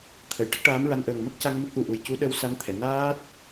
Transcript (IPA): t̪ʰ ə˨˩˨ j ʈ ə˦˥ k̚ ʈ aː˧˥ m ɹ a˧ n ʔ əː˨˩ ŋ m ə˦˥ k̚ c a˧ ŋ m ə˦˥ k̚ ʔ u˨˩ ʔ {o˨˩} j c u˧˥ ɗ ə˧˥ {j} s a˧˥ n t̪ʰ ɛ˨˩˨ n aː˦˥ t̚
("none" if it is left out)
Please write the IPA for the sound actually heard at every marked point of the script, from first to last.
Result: u˨˩, w

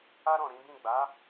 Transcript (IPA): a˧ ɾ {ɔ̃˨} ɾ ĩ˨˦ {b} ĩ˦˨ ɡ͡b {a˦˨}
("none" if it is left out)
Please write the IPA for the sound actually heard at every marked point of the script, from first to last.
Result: ɔ̃˨, b, a˨˦

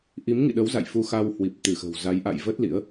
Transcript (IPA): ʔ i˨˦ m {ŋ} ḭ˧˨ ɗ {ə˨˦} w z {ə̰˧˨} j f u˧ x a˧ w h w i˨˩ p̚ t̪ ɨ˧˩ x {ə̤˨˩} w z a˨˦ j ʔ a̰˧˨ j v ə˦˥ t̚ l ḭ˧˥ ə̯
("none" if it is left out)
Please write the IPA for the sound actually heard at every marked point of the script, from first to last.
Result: ŋ, ə˨˦, a̰˧˨, ə̤˨˩

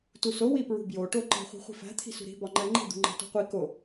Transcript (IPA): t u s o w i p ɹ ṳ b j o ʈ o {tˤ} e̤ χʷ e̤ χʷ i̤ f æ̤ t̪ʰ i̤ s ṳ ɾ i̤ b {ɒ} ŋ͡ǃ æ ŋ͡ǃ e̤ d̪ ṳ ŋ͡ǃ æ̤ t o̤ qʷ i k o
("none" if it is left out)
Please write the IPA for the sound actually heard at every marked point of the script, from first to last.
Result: ǃ, ɒ

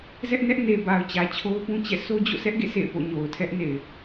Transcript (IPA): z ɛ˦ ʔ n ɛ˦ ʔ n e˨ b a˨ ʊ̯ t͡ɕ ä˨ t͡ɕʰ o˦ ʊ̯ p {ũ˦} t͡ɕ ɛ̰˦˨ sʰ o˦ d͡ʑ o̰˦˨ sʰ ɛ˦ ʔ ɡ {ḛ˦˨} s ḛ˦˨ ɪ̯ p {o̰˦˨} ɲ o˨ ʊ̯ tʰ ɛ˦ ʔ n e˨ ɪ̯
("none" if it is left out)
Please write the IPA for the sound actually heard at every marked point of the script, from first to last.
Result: ũ˦, ḛ˦˨, o̰˦˨

